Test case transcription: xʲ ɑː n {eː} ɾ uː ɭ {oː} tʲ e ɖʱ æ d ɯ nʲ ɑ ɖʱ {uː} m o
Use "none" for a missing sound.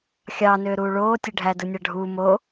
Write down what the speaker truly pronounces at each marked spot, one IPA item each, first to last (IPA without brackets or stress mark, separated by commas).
øː, oː, uː